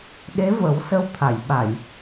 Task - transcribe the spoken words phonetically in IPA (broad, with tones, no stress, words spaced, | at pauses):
ɗe˧˥və˨˩˦w sə˧wt̪ʰa˨˩˨jɓa˨˩˨j